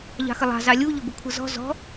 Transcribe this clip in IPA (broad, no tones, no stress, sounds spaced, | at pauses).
ʎ ɑ̤ x ə lˠ ɑ̤ z ɑ lʲ u ʎ ʊ b ɪ kʷʰ ə z ɔ̤ z ɔ̤